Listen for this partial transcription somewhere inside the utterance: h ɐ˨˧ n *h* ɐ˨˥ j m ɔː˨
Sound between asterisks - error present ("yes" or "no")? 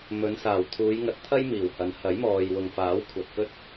no